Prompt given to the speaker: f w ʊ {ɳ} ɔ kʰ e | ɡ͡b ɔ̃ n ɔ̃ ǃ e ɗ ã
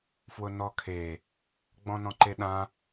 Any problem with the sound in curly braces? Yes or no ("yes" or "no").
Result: yes